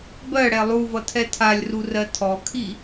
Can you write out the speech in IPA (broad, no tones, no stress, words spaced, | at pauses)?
bɜɽɛ lˠuvʌtʰɛ tʰalʲrurɜ tʰɔkʰi